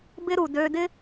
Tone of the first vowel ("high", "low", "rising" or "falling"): high